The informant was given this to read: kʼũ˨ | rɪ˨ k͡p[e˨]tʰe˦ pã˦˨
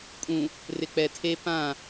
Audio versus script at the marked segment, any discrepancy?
yes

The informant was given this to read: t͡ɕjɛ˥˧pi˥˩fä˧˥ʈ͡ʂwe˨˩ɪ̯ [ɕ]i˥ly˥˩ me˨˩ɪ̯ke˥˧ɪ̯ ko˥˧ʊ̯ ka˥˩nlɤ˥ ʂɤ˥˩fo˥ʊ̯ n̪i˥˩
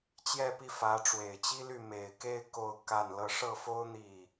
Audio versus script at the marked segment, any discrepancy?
yes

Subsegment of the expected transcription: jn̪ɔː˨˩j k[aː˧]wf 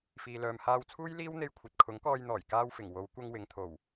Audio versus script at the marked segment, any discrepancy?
no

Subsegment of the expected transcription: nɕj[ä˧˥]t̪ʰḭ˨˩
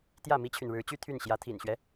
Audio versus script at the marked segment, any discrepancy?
no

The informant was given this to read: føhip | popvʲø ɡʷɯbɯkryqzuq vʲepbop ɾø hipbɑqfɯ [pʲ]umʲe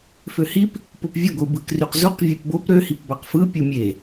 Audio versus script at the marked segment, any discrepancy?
no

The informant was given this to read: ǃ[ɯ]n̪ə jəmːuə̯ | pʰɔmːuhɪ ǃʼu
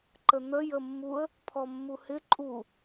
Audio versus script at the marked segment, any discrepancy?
yes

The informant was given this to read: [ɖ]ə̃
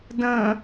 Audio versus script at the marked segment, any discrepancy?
yes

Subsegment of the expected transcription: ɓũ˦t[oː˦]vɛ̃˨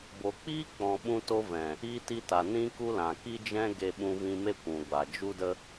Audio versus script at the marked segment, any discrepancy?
yes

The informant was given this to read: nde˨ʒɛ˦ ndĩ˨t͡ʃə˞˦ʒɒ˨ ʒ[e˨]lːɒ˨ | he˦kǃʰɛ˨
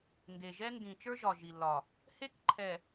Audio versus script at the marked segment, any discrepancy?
yes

